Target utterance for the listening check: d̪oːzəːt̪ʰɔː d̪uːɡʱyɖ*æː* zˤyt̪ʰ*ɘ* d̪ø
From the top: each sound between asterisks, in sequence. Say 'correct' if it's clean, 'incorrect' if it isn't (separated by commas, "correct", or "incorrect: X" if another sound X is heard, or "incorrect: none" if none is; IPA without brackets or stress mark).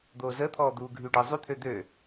incorrect: əː, incorrect: ø